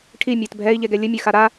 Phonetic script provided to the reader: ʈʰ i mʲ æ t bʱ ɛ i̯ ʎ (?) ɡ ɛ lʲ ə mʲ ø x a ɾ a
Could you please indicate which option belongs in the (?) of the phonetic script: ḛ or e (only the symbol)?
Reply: e